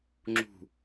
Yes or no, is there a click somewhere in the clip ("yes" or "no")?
yes